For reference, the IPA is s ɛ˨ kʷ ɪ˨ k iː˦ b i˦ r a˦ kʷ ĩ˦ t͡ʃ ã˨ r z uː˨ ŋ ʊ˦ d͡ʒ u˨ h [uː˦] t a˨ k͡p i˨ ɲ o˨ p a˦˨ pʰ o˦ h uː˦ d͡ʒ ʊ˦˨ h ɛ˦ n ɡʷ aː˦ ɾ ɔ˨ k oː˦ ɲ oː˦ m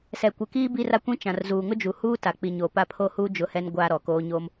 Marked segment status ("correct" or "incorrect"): correct